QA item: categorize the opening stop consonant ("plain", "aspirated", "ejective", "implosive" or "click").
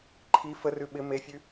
click